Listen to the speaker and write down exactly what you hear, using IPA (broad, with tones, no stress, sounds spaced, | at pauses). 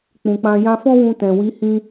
k͡p ũ˨ k͡p ã˧ j ã˧ f ɔ̃˦ w ũ˧ t ɛ̃˨ w i˨˦ h ĩ˦